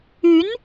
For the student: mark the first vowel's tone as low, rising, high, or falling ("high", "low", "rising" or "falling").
rising